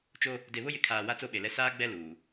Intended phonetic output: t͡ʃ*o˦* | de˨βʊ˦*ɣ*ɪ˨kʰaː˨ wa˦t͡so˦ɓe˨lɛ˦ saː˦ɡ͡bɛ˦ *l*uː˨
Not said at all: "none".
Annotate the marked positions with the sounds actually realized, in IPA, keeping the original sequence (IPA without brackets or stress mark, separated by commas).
o˦, j, l